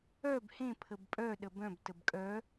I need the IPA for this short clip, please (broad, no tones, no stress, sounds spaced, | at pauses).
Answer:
œ b h ẽ pʰ ə b pʼ œ ɗ ə b œ̃ b t ə b kʼ œ